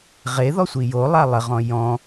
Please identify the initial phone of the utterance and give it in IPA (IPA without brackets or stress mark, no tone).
ʁ